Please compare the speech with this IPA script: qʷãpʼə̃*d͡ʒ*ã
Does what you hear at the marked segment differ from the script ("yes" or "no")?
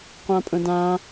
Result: yes